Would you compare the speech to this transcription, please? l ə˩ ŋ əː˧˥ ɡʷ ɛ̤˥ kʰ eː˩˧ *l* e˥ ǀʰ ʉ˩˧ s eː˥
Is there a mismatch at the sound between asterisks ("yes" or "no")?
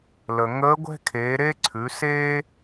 yes